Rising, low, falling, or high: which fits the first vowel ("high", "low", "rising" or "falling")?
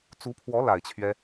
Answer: rising